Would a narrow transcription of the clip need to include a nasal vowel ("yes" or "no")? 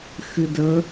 no